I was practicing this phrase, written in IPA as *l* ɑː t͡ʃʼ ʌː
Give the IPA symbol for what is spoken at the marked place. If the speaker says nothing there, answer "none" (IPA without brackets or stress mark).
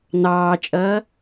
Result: n̪